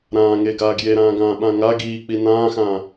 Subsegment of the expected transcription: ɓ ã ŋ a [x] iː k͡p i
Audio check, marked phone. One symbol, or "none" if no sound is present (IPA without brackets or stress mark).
ɡ